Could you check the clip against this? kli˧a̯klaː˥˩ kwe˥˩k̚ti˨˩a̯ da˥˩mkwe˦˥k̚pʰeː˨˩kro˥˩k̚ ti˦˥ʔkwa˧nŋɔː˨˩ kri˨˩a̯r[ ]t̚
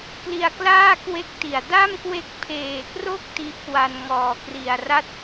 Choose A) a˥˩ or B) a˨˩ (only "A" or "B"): A